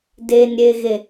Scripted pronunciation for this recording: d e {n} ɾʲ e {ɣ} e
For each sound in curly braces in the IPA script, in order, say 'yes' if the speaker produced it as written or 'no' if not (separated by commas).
yes, yes